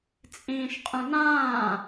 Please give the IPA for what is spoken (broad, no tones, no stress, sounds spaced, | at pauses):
t͡sʼ ĩː ʃ qʼ ũ n ãː